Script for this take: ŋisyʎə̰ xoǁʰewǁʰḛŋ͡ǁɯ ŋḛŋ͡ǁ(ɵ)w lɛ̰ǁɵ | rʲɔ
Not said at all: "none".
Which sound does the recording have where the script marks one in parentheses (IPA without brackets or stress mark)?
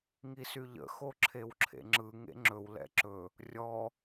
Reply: ɵ